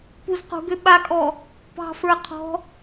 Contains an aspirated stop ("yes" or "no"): yes